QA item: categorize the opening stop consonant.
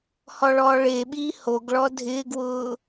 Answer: implosive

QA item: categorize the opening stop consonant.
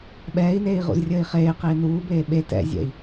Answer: implosive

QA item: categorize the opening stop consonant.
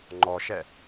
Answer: click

